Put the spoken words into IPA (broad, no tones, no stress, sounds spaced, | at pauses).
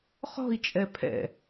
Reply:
χ ɔ̤ i̯ t͡ʃʼ ɛ pʰ ɛ̰